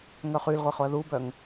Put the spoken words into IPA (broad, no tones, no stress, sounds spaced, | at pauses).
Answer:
ŋ œ χ y l ʁʷ e χ o ɐ̯ ð u b œ ŋ